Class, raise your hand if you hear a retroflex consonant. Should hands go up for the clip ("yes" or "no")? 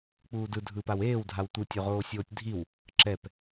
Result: no